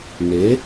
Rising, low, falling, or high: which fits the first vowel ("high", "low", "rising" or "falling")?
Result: rising